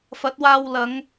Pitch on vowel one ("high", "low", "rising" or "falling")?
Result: rising